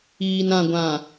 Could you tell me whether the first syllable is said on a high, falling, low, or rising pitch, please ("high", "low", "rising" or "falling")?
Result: low